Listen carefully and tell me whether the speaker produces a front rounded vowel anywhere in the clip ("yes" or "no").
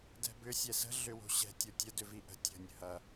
yes